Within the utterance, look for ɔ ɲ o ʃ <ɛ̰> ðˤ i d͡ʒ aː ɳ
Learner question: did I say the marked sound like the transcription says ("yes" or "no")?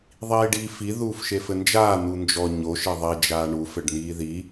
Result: no